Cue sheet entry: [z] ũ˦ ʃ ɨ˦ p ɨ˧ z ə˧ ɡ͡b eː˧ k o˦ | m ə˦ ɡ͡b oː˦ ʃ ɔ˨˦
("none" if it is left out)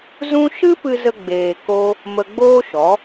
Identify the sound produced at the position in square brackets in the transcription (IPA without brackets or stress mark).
z